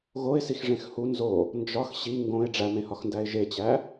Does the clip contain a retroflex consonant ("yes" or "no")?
yes